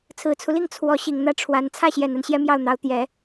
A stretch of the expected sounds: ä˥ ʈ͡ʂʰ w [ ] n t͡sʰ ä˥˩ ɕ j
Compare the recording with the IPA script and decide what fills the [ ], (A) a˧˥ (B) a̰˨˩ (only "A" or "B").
A